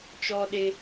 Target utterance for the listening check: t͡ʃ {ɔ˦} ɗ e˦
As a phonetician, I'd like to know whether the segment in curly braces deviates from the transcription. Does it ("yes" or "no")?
no